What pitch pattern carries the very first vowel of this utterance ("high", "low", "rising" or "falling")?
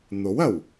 rising